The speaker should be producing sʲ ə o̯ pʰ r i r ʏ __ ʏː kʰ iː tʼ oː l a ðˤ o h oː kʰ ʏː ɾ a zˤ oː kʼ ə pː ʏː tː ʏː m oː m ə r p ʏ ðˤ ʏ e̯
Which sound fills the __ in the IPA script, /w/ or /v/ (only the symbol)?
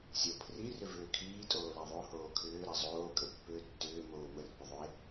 v